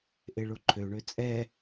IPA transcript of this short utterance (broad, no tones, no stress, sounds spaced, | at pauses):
ʔ e ɭ o ǃʰ ø ɳ ø t͡sʼ ɛ